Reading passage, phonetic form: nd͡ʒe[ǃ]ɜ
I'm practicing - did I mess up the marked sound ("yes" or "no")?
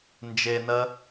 yes